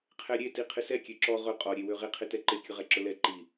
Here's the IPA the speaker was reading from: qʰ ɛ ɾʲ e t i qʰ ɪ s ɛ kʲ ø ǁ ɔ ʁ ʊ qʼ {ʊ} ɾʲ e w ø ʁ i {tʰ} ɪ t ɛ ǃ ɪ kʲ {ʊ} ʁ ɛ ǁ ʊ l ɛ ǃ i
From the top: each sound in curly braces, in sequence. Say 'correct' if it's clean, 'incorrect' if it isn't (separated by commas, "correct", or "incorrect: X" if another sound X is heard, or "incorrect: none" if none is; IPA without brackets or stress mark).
incorrect: ɔ, incorrect: qʰ, correct